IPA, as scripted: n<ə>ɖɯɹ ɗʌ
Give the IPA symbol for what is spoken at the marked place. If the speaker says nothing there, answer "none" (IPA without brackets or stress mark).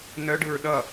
œ